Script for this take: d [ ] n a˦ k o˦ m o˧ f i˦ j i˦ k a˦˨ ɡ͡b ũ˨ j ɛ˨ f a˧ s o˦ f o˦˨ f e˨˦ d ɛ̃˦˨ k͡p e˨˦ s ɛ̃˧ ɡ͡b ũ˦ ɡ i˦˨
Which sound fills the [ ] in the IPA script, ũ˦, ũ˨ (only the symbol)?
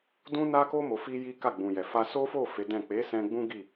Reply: ũ˦